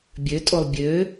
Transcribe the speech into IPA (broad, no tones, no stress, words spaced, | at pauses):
bʲøtʼolˠ bʲø